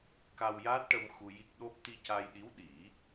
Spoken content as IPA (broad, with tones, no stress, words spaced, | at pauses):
ka˧wjaː˦˥t̚ʈə˧m xu˧ji˦˥k̚ ɗo˦˥p̚ t̪i˧ca˧jɗi˧˥w ɗi˨˩˦